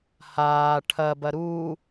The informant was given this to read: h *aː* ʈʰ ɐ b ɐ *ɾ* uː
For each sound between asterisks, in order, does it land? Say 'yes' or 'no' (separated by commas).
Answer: yes, yes